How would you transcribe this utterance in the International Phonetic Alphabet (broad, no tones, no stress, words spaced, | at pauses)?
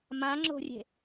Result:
mãŋ͡ǁo̤rʲe̤